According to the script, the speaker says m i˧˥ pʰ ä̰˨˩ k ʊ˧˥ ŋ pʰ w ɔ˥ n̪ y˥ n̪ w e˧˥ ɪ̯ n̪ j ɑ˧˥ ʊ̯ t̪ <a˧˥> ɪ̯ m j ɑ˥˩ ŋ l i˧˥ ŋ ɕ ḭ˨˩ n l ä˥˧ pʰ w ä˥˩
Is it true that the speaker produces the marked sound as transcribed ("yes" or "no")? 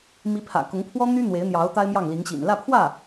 no